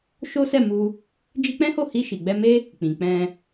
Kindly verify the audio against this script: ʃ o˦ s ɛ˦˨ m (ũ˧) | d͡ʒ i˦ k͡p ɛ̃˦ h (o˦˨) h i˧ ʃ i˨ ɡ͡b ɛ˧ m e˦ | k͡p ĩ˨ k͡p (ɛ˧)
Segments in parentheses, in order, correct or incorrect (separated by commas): incorrect, correct, incorrect